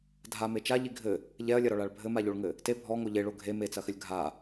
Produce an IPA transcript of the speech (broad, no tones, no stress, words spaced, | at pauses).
dʱame t͡ʃaʎi ɡʱɘ | ʎɛɐ̯lʲɐɾɔɭaɭ bʱɘmaʎoɭŋɘ | te bʱɔŋo ʎeɭo ɡʱe met͡sɐxɘlʲ ɡʱa